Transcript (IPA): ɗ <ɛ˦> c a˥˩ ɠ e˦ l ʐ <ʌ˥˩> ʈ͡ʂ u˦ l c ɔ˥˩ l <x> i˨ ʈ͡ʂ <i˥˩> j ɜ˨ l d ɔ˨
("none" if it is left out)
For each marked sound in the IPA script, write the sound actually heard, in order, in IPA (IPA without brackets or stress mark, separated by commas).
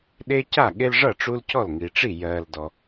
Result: e˦, ʌ˥˩, ŋ, i˥˩